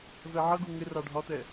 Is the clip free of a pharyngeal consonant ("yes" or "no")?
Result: no